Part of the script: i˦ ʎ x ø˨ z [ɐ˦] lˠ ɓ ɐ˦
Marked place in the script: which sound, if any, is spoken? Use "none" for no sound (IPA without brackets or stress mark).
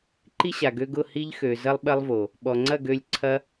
ɐ˦